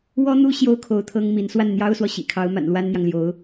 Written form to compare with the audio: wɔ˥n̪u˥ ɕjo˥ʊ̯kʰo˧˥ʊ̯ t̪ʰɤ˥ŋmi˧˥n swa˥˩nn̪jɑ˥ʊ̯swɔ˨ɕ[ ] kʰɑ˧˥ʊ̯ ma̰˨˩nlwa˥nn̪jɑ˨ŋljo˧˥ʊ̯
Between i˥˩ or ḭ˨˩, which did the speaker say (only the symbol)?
ḭ˨˩